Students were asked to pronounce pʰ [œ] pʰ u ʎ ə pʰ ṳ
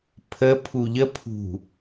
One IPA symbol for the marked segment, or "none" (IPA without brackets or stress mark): ə